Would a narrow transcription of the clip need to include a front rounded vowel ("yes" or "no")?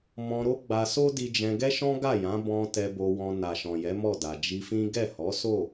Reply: no